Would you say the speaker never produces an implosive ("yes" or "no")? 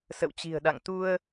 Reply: no